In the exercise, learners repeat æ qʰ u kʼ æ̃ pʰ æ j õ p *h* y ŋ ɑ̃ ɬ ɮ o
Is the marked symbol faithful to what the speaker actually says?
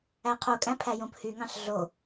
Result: yes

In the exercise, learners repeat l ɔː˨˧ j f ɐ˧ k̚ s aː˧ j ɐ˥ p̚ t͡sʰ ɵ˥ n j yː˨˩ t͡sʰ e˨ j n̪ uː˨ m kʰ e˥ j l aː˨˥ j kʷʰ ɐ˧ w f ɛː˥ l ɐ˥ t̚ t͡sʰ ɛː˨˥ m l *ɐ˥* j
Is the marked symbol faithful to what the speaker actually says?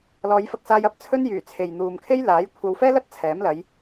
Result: no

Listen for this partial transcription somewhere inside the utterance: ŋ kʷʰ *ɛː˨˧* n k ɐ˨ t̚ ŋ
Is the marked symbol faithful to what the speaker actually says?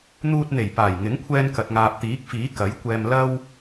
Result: no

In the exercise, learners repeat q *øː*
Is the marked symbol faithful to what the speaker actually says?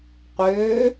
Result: yes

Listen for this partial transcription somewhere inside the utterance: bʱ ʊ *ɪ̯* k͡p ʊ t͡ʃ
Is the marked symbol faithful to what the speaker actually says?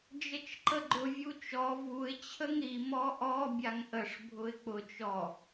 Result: yes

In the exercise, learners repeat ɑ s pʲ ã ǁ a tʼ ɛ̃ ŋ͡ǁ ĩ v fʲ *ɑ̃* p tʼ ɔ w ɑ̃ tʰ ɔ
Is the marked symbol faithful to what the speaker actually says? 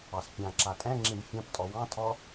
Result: yes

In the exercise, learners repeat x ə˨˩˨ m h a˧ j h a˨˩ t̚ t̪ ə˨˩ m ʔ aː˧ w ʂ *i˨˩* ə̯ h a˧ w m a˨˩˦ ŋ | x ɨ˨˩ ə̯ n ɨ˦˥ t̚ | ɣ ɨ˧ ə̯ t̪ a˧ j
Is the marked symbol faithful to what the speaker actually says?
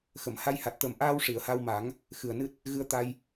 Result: no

